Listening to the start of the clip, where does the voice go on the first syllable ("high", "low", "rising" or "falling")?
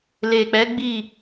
low